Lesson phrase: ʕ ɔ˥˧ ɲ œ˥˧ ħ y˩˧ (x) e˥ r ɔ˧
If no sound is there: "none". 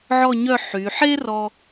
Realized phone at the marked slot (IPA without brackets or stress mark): ħ